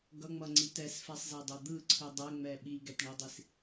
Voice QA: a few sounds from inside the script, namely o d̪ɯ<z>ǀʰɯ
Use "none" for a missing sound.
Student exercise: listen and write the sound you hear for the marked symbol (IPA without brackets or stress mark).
none